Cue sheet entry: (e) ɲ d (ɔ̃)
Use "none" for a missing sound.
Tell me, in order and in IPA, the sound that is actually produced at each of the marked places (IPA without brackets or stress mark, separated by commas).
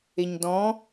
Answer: e, ɔ̃